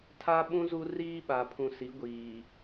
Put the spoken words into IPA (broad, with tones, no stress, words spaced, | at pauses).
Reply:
tʰa˦ ɓũ˦zu˦ riː˦ɓa˨pʰũ˨si˨˦ ɡʷiː˨